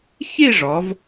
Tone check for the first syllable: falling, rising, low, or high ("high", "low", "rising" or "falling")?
falling